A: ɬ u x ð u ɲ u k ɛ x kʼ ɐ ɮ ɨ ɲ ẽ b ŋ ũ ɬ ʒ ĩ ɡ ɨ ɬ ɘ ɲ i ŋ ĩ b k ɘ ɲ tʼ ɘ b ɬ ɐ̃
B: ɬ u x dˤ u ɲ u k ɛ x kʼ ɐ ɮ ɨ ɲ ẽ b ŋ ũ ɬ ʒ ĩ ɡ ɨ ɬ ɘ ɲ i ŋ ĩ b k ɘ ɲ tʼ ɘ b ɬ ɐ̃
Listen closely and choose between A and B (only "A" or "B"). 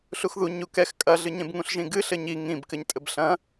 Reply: A